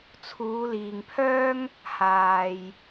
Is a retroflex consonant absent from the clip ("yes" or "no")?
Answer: yes